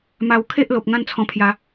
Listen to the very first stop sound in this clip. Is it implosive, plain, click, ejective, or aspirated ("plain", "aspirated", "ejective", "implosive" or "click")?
aspirated